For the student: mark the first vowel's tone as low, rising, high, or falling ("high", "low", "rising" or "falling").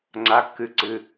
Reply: rising